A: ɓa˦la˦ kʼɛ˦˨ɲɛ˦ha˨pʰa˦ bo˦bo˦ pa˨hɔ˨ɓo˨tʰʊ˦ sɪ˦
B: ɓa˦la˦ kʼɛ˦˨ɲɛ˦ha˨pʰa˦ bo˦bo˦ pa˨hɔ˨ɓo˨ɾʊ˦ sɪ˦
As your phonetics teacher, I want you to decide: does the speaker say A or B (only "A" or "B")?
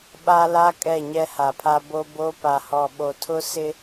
A